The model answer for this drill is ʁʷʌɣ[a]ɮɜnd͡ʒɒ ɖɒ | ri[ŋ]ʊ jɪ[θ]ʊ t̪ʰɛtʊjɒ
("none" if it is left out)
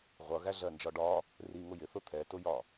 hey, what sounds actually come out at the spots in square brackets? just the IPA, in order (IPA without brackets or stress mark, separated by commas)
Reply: æ, ŋ, θ